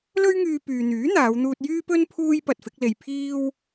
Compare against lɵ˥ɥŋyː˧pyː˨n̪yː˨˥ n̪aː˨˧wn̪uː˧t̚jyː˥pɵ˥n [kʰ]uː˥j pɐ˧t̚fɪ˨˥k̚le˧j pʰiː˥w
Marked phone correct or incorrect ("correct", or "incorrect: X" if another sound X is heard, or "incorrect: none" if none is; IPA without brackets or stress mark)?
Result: incorrect: pʰ